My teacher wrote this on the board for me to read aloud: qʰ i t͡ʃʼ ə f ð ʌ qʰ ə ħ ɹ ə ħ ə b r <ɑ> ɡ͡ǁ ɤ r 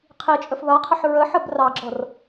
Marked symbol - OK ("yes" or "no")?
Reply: yes